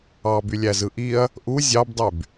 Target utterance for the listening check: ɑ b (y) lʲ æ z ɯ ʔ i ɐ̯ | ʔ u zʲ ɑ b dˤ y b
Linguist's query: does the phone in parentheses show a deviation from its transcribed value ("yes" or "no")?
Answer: no